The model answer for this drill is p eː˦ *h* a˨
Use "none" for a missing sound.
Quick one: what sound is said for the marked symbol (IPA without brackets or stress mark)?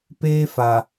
f